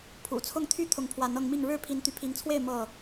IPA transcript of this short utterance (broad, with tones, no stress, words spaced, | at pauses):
pʰṵ˨˩t͡sʰʊ˥˨ŋt̪ʰy˥˨ t̪ʰʊ˨˦ŋpʰwa˨˦nɤ˧ŋmi˥˨ŋ ɻɻ̩˥˨ pʰi˨˦nt̪y˨˦pʰi˨˦ŋt͡sʰwe˥˨ɪ̯ mɤ˥˨